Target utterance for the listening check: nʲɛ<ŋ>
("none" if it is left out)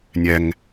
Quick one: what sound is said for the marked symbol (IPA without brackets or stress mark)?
ŋ